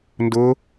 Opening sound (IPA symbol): n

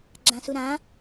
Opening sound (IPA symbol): ɡ͡ǁ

